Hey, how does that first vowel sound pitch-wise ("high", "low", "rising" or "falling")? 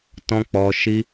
high